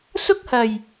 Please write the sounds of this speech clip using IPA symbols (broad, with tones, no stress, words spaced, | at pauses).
sʊ˥k̚hɐ˨˩j